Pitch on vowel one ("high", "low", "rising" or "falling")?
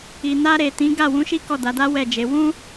low